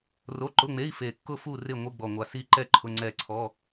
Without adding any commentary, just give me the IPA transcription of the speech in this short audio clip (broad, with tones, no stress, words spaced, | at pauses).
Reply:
ro˧˥˧ǃʊ˧˥˧ŋ͡me˧˥˧i̯ fe˨˩kːʊ˦˨fu˦˨ rɪ˦˨ ŋʷɪ˧˥˧ɡ͡bɔ˨˩ŋʷa˨˩si˦˨ ǃɛ˦˨ ǃʰʊ˧˥˧ŋ͡ǀɛ˦˨ ǀʰɔ˧˥˧